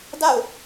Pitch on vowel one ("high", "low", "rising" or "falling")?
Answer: falling